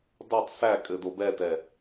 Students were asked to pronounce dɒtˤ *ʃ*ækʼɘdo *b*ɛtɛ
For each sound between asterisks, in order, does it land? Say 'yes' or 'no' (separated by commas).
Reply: no, yes